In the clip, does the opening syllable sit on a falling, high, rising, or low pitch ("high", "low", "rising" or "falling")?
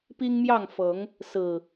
high